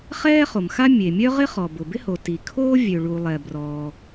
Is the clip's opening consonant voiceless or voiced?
voiceless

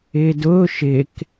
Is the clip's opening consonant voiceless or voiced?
voiced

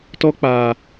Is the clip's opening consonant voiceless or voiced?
voiceless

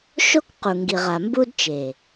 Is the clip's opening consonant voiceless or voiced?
voiceless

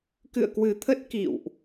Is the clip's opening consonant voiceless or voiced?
voiceless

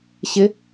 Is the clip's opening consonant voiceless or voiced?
voiceless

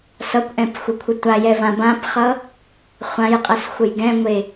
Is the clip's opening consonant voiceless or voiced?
voiceless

